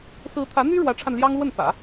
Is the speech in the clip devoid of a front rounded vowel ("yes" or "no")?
no